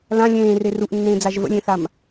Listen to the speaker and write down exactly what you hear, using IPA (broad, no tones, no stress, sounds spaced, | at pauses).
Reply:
l ã lʲ ẽː r e r u ʔ nː ẽː d͡z a ʒ v ə̰ lʲ ẽ θ a m